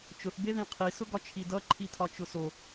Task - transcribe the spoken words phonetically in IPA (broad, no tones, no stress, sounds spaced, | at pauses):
t͡ʃ ʊ θ b e ð ĩ qʰ i s ʊ ɡ ɒ t͡ʃʰ i d ʌ ǃʰ i tʰ ɒ t͡ʃ ʊ s o